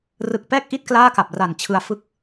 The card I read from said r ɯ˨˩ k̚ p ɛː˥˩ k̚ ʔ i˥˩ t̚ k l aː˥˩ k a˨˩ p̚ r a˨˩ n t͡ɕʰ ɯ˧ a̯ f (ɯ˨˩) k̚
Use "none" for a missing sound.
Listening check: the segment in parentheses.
ɯ˥˩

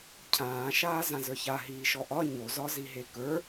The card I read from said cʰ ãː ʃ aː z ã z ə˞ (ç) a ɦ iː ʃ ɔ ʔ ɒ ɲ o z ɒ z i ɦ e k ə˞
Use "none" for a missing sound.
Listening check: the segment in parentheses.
ç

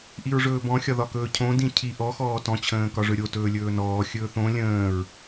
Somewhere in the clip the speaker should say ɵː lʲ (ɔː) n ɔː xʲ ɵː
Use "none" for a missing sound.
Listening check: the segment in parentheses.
ɵː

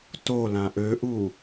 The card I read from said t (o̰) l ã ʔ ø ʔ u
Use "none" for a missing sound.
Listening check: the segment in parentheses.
o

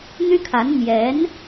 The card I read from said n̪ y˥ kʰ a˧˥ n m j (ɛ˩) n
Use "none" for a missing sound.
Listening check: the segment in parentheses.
ɛ˧˥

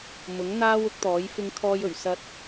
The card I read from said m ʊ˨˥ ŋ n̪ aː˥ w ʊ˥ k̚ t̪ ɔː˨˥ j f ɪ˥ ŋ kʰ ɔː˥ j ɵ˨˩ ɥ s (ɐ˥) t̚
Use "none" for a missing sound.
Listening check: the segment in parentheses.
ɐ˧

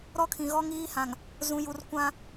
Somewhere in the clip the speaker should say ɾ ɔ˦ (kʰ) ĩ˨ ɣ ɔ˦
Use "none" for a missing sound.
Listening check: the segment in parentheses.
kʰ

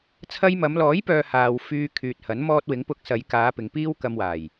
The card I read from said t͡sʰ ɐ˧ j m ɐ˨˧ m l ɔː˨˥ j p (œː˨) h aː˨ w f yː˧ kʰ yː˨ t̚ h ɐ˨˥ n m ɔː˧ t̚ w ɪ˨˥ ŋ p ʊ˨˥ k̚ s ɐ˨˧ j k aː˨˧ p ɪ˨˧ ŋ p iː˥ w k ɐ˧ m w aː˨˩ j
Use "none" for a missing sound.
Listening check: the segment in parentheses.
œː˨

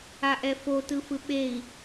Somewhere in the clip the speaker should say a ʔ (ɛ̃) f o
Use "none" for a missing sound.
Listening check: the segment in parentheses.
ɛ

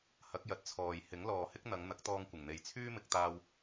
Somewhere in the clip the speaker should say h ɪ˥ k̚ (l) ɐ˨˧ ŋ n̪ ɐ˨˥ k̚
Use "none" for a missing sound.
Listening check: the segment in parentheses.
n̪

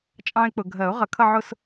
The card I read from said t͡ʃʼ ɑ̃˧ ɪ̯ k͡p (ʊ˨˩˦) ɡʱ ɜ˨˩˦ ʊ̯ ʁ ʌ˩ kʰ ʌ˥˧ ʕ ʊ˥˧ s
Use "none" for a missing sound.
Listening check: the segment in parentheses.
ʊ˩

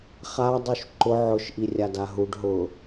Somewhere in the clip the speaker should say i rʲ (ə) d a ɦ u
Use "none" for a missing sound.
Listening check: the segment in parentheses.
a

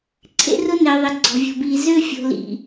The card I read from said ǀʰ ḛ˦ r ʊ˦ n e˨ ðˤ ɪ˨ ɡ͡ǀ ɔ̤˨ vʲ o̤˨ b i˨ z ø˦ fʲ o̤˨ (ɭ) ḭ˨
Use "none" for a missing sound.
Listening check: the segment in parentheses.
l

